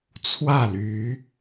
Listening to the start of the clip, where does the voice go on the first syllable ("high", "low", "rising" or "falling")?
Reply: falling